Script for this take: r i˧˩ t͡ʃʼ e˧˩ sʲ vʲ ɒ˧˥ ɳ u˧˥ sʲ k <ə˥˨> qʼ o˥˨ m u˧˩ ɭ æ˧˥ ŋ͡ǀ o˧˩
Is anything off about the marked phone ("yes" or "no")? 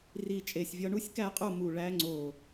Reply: yes